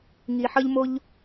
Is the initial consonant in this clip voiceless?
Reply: no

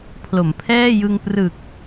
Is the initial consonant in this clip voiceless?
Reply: yes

